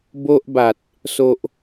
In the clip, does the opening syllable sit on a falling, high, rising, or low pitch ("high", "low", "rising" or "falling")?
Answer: high